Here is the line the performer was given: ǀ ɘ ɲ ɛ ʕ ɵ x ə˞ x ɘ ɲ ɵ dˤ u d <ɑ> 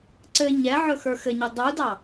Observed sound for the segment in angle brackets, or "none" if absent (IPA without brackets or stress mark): ɑ